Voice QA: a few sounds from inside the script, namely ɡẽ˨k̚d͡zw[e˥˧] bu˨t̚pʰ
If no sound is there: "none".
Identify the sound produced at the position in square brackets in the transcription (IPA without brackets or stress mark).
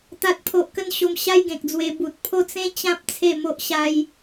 e˧